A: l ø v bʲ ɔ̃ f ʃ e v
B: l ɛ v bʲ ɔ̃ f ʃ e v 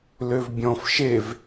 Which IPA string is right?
A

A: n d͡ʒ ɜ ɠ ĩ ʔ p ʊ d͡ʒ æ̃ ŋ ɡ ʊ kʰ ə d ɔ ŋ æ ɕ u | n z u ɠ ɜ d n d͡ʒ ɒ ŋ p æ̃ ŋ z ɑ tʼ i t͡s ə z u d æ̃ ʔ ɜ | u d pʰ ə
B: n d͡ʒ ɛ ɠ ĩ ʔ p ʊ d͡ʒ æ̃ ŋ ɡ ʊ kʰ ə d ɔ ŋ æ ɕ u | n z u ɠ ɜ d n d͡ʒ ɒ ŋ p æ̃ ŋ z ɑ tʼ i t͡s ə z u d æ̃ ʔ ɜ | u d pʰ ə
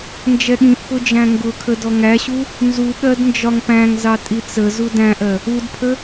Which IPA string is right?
B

